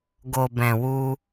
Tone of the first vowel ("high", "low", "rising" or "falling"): low